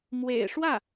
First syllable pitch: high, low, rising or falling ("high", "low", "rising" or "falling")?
low